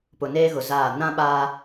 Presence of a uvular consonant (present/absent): absent